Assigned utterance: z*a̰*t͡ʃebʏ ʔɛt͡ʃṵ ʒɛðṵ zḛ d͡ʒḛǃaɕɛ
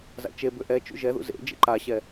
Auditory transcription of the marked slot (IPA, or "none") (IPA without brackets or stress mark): a̰